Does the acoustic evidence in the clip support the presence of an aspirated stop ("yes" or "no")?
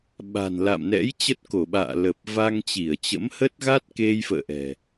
no